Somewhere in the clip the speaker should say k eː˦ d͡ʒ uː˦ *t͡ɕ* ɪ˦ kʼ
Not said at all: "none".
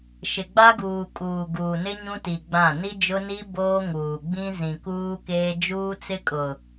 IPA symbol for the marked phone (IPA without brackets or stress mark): t͡s